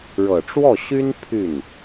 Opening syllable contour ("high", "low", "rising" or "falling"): low